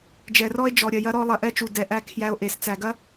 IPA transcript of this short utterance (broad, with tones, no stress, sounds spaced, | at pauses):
d͡ʒ ɛ˨ r ɔ˦ e̯ d͡ʒ ɔ˨ ɾʲ ɐ˨ j ɐ˦ ɾ ɔ˦ lˠ ɐ˨ ʔ ɛ˦ t͡ʃ u˨ d ɛ˨ ʔ æ˦ kʰ j æ˦ o̯ ʔ e˨ s t͡s æ˨ ɡ ɐ˦